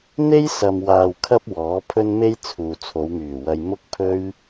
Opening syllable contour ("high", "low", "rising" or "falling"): high